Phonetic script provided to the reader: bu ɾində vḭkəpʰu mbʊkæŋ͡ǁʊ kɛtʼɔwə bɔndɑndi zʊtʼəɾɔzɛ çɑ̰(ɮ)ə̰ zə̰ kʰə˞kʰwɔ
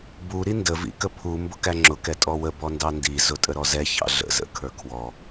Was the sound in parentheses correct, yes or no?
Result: yes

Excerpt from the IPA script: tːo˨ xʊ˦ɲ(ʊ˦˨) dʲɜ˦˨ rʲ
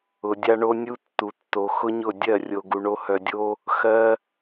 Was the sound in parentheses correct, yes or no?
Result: yes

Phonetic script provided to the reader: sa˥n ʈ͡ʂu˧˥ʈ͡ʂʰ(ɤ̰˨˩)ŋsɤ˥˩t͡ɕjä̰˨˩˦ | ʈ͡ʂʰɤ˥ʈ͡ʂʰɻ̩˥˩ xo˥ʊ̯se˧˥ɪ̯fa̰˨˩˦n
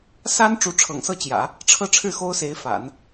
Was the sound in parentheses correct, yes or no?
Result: yes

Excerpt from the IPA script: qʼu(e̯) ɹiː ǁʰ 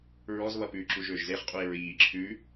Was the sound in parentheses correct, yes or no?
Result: yes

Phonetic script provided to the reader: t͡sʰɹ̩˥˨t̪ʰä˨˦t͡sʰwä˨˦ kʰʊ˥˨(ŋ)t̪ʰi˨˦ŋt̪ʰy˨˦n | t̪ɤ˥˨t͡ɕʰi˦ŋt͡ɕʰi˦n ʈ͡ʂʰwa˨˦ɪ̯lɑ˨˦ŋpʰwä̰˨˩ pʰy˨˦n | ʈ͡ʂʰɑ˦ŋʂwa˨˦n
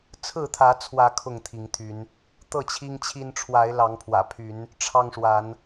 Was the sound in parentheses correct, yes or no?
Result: yes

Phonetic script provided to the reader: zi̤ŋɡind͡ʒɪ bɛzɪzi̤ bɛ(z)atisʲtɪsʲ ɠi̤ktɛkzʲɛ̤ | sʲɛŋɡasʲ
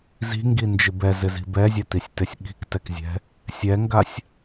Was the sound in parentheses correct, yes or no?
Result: no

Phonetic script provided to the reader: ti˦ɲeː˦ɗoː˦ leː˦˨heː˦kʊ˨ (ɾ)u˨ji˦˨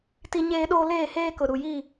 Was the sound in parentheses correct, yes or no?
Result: yes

